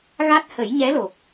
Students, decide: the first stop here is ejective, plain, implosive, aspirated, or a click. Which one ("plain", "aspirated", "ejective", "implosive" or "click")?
plain